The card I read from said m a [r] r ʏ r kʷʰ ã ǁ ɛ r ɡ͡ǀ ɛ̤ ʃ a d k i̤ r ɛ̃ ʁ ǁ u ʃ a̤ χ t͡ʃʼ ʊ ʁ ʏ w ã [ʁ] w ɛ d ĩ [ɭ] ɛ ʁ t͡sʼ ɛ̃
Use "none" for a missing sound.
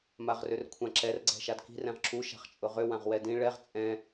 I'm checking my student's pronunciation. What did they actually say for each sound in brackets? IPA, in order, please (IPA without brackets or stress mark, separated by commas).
ʁ, ʁ, ɭ